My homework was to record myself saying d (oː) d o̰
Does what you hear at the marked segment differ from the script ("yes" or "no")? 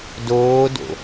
no